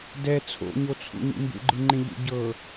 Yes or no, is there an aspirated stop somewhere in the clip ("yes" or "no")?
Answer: yes